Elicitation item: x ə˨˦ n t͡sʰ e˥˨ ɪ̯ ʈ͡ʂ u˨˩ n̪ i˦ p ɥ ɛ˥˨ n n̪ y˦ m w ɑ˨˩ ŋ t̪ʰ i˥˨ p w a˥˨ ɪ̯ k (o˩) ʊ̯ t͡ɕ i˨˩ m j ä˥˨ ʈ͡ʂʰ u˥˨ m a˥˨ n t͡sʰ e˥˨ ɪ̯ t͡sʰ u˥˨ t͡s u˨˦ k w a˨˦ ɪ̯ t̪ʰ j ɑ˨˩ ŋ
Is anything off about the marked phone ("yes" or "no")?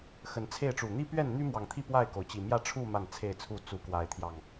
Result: no